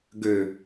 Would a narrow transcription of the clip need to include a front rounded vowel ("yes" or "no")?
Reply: yes